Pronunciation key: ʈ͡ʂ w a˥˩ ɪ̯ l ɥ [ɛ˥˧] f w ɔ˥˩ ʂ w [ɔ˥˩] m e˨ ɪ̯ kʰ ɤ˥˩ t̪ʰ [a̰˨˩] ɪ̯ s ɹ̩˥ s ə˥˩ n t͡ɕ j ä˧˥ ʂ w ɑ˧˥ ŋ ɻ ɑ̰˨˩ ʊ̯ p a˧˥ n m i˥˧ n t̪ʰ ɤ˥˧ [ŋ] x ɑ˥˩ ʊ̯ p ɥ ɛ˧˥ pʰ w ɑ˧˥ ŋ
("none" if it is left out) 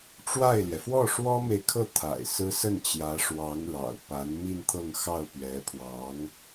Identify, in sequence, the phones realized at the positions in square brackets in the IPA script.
ɛ˩, ɔ˥, a̰˨˩, ŋ

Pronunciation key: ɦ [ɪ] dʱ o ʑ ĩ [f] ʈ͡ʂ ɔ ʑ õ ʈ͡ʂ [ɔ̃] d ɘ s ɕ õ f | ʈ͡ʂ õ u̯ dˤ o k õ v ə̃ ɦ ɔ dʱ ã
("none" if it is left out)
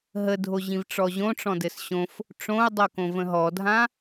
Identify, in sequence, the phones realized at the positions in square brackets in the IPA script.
ə, v, ɔ̃

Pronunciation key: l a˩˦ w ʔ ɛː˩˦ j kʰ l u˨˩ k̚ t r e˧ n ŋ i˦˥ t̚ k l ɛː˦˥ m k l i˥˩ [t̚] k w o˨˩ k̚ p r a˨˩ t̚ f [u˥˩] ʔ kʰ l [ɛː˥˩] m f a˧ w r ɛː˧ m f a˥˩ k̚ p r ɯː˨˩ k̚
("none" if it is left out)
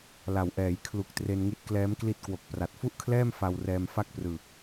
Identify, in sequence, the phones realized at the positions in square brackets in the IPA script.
t̚, u˥˩, ɛː˥˩

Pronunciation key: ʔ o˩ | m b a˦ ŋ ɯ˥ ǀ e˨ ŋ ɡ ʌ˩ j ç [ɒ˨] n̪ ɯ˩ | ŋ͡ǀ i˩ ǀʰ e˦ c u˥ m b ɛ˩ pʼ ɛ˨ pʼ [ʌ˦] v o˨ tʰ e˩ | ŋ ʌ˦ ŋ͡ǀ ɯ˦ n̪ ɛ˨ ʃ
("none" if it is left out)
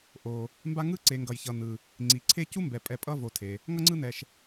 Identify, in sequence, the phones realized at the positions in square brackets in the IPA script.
ʌ˨, ʌ˦

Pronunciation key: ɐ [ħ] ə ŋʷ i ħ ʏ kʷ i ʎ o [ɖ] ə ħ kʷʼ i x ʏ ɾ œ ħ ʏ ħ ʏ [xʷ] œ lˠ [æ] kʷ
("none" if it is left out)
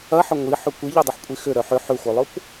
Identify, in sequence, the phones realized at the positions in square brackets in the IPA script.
ħ, dˤ, xʷ, œ

